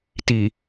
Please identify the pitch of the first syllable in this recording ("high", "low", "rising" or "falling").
low